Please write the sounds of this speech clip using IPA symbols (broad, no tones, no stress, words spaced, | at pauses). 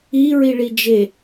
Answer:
i ɹiɭid͡ʒe